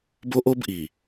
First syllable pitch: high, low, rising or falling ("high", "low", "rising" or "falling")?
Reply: high